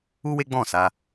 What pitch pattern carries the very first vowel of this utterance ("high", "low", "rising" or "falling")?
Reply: high